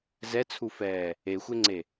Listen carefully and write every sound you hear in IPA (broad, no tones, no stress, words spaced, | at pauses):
zɛt͡sʰufɛː | exʷeŋ͡ǀe